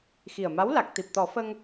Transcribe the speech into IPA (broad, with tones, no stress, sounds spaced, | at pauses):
x i˨˩ ə̯ m a˧˥ w l a˨˩ k̚ t̪ i˨˩ p̚ t̪ ɔ˨˩˦ f ə˧ ŋ